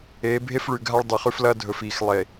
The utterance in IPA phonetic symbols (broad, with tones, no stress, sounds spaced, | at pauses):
eː˨˦ bʱ e˦ f ɭ ʉ˨ ɡʱ a˦ ɭ dˤ ɨ˨ χ ʉ˦ f l ɐː˦ dʱ ɵ˨ f iː˨ x lˠ e˨